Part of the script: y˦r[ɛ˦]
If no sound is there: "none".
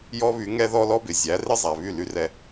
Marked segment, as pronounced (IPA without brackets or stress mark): ɛ˦